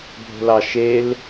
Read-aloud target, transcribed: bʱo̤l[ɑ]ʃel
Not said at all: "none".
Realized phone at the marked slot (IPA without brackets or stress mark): ɑ